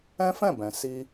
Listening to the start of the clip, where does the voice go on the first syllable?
high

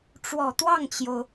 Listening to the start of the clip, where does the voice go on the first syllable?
low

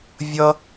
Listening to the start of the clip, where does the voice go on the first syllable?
high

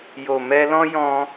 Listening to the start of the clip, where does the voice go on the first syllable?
low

